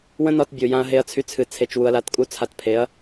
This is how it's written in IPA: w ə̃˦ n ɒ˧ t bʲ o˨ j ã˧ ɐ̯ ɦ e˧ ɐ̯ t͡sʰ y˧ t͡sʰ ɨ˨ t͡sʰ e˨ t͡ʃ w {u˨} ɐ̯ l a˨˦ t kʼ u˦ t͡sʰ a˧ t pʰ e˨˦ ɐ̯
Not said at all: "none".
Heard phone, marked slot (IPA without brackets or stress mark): u˨